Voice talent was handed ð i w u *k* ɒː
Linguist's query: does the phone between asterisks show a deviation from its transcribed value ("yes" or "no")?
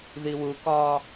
no